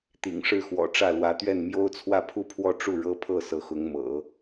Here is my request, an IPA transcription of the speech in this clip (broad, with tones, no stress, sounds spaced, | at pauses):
t̪ ḭ˨˩ ŋ ʂ ɻ̩˥˩ x w ɔ̰˨˩ ʈ͡ʂ ä˥˩ l w ä˧˥ t̪ ɥ ɛ˥˩ n m j o˥ ʊ̯ t͡sʰ w ä˥˧ pʰ u˥˧ pʰ w ɔ˥˧ ʈ͡ʂ u˥˩ ɻ ɤ˥ pʰ ɤ˥˩ s ɤ˧˥ x ʊ˧˥ ŋ m ɤ̰˨˩˦